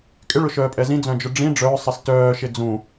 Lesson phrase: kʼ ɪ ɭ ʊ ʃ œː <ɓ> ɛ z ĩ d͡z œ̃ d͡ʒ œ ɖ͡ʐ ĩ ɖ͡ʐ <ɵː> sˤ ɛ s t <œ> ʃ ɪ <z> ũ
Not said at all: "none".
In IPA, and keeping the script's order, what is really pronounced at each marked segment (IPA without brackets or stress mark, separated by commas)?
pʼ, œː, œː, d͡z